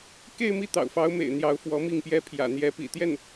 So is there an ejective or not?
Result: no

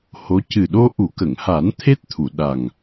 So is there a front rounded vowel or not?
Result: no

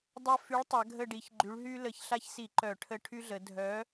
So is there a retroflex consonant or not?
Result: yes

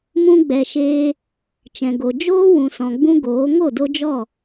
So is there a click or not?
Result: no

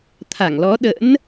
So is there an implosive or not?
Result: yes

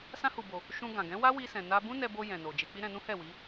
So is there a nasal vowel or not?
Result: yes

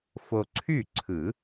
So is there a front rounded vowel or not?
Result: yes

